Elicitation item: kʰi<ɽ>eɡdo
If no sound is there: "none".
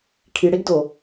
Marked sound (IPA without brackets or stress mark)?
ɽ